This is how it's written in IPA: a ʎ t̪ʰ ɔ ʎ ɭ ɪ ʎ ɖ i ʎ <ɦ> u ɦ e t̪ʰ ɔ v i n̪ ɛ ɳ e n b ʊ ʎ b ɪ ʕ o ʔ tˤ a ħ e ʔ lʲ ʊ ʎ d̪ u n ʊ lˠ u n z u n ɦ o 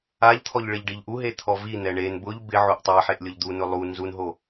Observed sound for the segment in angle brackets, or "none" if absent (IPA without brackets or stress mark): ʔ